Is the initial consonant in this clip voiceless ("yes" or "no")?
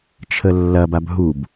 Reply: yes